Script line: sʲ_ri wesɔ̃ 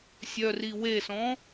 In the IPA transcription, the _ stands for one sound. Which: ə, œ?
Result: œ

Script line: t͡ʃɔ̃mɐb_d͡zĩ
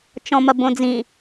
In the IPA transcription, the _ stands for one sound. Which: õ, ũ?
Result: õ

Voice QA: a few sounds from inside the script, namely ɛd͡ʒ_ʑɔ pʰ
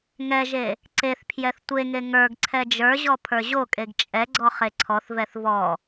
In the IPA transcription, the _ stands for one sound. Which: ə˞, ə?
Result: ə˞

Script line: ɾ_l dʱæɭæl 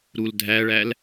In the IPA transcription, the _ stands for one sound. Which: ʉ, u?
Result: u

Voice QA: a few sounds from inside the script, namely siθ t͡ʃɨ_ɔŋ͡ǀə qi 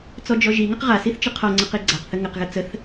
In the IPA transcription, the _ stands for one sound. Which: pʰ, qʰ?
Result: qʰ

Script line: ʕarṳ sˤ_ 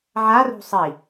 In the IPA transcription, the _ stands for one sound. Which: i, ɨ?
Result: i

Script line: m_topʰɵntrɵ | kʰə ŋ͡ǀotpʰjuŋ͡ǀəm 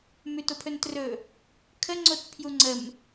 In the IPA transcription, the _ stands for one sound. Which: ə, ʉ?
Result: ʉ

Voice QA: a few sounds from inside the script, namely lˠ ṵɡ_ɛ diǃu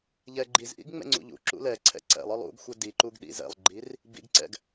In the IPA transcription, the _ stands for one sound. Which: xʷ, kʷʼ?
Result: xʷ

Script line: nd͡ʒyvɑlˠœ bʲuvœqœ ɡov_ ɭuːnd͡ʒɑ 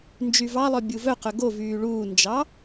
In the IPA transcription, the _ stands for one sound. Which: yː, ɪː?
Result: yː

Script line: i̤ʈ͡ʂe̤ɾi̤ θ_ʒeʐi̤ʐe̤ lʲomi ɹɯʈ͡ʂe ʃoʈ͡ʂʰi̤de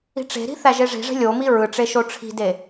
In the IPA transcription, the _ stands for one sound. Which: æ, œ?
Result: æ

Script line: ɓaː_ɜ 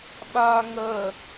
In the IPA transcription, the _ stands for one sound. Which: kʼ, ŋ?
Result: ŋ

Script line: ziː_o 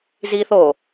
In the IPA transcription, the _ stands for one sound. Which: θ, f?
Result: θ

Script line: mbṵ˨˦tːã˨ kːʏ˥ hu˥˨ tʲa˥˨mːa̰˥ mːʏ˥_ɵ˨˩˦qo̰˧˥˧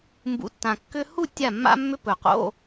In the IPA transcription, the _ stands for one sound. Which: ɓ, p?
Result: p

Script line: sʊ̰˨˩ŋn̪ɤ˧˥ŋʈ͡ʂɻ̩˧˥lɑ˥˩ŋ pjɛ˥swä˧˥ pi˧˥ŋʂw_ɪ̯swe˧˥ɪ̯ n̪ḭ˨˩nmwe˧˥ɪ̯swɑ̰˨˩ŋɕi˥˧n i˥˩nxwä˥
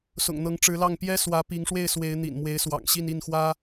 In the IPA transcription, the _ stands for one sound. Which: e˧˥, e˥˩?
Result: e˥˩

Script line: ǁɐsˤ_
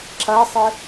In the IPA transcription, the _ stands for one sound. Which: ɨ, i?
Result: ɨ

